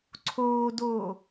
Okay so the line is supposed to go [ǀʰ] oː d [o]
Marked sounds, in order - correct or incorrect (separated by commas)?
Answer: correct, incorrect